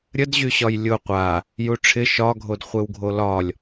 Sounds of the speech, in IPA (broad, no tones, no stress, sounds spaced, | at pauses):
ɾʲ ə d ʑ y ɕ ɒ j lʲ ʊ qʷ a | j u ʈ͡ʂʰ ɪ ʃ ɒ ɡʱ o d χʷ e w ɡʱ o l ɒ lʲ